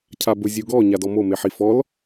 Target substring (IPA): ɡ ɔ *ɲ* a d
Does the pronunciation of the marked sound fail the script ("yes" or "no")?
no